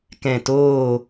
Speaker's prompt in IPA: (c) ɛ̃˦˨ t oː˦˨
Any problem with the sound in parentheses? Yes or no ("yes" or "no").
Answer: yes